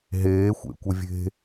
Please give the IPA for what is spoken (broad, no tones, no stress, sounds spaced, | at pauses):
ɦ eː xʷ ḛ kʷ ɪ vʲ e̤